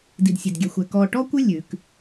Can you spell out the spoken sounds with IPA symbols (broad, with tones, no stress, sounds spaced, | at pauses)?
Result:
d i˨ d sʲ e˨ d ɡʲ ɛ˨ xʷ ɛ˨ k ɔ˨ ʈ ɔ˦ kʷ ɪ˦ lʲ ʉ˨˦ k